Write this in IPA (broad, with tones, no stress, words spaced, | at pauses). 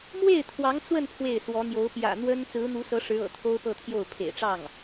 mwe˥˩ɪ̯ t̪ʰwɑ˧˥ŋt͡swə˥˧n pʰwe˥˩ɪ̯swɔ˧˥n̪jo˧˥ʊ̯ pjä̰˨˩n̪wə˥n t͡sɹ̩˧˥n̪u˧˥sɤ˧˥ ʂɻ̩˧˥ɤ̰˨˩ t̪ʰo˥ʊ̯pɤ˥˧t̪ʰjo˥˩ʊ̯ pʰḛ˨˩ɪ̯ʈ͡ʂɑ˥˩ŋ